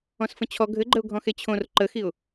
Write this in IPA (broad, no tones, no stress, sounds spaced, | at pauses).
ɔ̃ s f ə̃ t͡ɕʰ ɔ ɡʱ ɘ ɡ͡ǃ ə ʊ̯ ɡʱ ɔ̃ x e t͡ɕʰ õ r ǃ ə x i ʊ̯